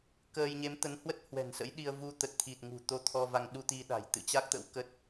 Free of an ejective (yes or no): yes